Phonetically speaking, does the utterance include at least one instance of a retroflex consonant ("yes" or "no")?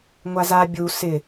no